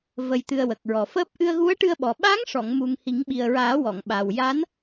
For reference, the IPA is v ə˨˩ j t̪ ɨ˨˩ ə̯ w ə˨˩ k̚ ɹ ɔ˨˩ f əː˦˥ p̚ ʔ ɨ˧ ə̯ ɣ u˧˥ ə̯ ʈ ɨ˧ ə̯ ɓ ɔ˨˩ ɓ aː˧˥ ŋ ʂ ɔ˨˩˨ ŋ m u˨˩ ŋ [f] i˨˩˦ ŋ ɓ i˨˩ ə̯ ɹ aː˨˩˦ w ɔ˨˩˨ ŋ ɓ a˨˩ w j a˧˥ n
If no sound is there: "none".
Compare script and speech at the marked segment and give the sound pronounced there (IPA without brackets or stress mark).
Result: h